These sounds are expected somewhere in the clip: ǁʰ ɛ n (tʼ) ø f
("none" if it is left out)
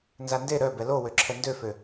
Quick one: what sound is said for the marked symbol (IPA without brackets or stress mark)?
d